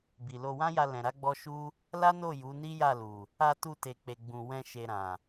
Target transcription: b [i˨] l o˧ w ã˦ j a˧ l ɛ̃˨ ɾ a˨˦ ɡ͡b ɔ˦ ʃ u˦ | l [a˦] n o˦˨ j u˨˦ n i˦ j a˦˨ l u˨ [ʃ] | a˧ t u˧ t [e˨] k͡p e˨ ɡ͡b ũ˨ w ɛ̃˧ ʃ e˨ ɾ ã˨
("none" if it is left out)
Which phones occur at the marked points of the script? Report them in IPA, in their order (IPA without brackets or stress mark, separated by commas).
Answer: i˨, a˦, none, e˨